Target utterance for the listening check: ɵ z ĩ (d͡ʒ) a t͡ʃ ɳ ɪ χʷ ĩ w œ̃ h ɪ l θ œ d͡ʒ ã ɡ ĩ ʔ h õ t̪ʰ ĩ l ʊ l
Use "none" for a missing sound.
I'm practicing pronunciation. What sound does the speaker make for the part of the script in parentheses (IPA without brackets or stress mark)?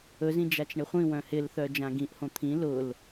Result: d͡ʒ